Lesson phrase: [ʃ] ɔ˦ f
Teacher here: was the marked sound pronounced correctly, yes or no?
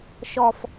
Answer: yes